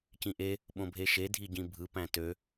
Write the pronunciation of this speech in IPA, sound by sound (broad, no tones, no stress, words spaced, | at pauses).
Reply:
cĩʔe | ɓõbʱeʃe dʱiɟĩbʱɯ pæ̃tø